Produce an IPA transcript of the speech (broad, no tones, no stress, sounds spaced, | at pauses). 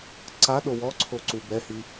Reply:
ǀ a ɗ o w ɔ ǀʰ o ǀ u b ɛ h i